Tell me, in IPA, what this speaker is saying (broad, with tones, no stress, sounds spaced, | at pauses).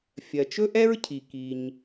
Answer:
fʲ ɜ˩ t͡ʃ ɵ˥ ʔ ɛ˥ ɹ cʰ i˩ k i˩ ɲ